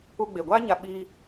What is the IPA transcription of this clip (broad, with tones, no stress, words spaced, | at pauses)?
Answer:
u˧ɡ͡be˨ɡʷaː˦ɲa˧ ɓiː˦